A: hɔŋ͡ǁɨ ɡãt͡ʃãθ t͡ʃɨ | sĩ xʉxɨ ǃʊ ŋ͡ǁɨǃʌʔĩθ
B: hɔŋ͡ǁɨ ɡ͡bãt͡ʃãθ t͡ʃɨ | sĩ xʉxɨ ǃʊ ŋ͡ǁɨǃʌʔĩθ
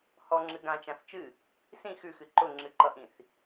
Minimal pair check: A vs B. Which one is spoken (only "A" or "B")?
A